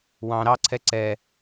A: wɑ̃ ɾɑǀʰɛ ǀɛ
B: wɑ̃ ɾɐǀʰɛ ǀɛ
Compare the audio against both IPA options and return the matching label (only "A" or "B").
A